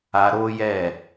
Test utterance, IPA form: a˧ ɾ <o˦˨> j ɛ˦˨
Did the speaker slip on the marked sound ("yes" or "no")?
yes